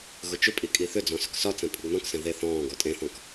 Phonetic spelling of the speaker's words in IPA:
ɣ ʊ t͡ʃ ʏ pʼ i kʼ i θ ʏ d͡z ɔ̃ s ʏ k s ɒ t͡s ɛ̃ pʼ ʊ ɡ n ɔ̃ k s ɛ̃ ð e θ ɔ̃ː ɡ ɔ tʼ ẽ θ ɔ̃ k

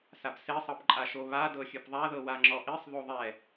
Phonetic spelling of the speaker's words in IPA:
s a b s e sˤ ɤ p ǃʼ a ʃ o β a d ɤ xʲ ɯ p ðˤ a ð ɤ w a ŋ͡ǁ ɔ ʔ i sˤ ð o ðˤ ɛ

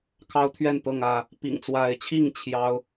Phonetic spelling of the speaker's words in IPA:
kʰ ɑ˦ ʊ̯ t̪ʰ ɥ ɛ˥˨ n t̪ ɤ˥˨ ŋ ä˥˨ | p ḭ˨˩ ŋ t͡s w a˨˦ ɪ̯ t͡ɕʰ i˥˨ ŋ t͡ɕʰ j ɑ˦ ʊ̯

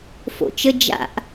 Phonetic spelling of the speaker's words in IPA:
f o̰ t͡ʃ ə d͡ʒ a̰ ʔ

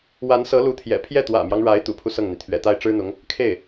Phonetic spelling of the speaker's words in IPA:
w a˧˥ n s ɤ˧˥ l u˧˥ t̪ʰ j ɛ̰˨˩ pʰ j ɛ˥˩ t̪ w ä̰˨˩ m j ɑ˦ ŋ ɻ a˧˥ ɪ̯ t̪ ṵ˨˩ pʰ u˦ s ɤ˥˩ ŋ n̪ i˩ t̪ʰ ɥ ɛ̰˨˩ t̪ a˥˩ ɪ̯ ʈ͡ʂ ɻ̩˥ n̪ ʊ˧˥ ŋ | kʰ e˥˩ ɪ̯

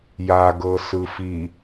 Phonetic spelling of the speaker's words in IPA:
j a ɡ ɤ s ɯ f i

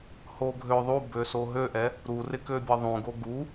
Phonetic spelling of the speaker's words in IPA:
h o ɡʱ ø ðˤ u b ø s o ɦ ø ʔ ɛ | ɾ u r ɪ k ø bʲ ɤ ðˤ ũ ɡ o ɡ u

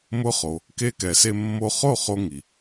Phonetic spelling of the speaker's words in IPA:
m ʊ˧ χ o˩ | k e˧ k ɛ˩ s e˧ mː o˧ χ o˥˩ χ o˧ ŋ i˩

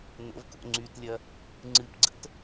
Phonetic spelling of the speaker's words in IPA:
n ə̰ v k o̰ ŋ͡ǀ y t lʲ ɐ | ŋ͡ǀ ɨ p ɡ͡ǀ ə̰ t

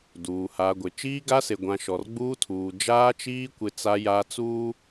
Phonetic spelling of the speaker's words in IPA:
d uː˨ h a˨ ɡʷ ɪ˨ t͡ʃ iː˦ ɡ a˦ s e˨ ɡʷ ã˨ ʃ ɔ˨ r ɡ͡b uː˦ tʰ uː˨ d͡ʒ aː˦ t͡ʃ iː˦ kʷ ɪ˦ t͡s a˦ j a˦ t͡s uː˦

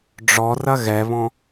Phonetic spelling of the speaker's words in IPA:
ɖ͡ʐ ɔ r ɐ ɣ ɛ β ɔ̃

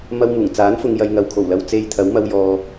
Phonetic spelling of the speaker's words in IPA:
m ɐ˧ w m uː˨˩ ŋ t͡s aː˨˥ n f ʊ˨ ŋ j ɐ˨ j ŋ ɐ˨ w kʰ o˨˩ w l ɐ˨ w t͡s e˧ j t̪ʰ ɐ˨˥ w m ɐ˧ w j ɔː˨

